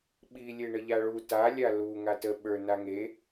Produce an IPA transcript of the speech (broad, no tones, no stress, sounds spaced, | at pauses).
ɓ i lʲ e ɳ ə ʎ a ɭ u t a lʲ a l u ŋ a t ə ɓ ə˞ n a ŋ e